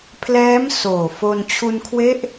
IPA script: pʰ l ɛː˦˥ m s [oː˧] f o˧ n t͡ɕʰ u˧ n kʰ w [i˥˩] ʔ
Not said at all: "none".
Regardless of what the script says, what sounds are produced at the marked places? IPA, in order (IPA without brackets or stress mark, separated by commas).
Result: oː˨˩, e˥˩